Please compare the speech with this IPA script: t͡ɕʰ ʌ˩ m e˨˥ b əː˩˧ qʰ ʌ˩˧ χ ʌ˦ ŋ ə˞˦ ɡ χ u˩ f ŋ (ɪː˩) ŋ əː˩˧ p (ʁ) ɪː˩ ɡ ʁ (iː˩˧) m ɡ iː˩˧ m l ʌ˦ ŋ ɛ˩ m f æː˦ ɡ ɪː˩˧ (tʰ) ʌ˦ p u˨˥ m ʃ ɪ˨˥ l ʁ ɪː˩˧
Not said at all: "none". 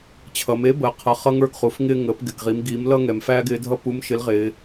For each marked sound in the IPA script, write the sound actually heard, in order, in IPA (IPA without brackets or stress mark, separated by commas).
ɪː˦, ɡ, i˩˧, dʱ